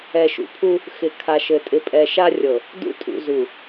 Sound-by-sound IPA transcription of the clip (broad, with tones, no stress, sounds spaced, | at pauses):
ɛ˨ ʃ ṵ˨ pʰ u˦ | x ɪ˨ kʰ a˨ ʃ ɘ˨ tʼ ɪ˨ pʼ ɛ˨ ʃ a˦ rʲ ɤ˨ | d ṵ˦ tʼ ṵ˨ z u˨